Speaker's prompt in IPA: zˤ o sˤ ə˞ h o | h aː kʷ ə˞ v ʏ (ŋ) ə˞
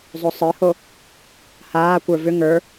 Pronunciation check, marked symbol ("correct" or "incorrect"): correct